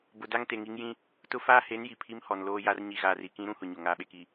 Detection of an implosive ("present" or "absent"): present